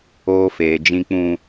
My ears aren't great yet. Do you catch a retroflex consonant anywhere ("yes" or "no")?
no